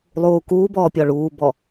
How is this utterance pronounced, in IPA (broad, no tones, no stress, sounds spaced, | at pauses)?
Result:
lˠ uː k uː b ɔː pʲ ɔ ɭ uː b ɔ